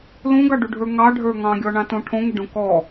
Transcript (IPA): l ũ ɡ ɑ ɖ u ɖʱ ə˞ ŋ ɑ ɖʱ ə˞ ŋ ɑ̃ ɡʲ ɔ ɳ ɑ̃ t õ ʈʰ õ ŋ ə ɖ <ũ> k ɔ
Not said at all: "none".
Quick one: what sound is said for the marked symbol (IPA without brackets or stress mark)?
õ